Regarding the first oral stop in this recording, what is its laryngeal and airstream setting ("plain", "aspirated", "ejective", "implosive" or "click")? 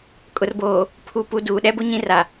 ejective